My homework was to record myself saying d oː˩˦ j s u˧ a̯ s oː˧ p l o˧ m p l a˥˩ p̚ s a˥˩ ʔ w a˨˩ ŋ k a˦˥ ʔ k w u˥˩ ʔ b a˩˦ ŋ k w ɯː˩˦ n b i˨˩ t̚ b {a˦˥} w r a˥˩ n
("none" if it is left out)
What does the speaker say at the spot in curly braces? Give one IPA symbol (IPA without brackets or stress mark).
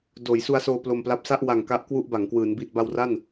a˧